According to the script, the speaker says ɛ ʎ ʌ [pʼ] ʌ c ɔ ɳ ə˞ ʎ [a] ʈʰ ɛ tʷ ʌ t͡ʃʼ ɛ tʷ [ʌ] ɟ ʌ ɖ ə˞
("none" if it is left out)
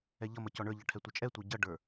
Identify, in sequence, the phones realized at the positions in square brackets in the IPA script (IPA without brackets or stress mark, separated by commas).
m, ʌ, ə˞